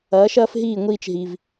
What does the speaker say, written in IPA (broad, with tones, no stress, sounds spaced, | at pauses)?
ɐː˩˥ ʃ ɐː˥ f ɦ iː˥˩ ŋʷ iː˧ t͡ʃ ɦ i˩ v